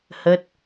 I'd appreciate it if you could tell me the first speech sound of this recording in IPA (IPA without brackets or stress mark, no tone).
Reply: h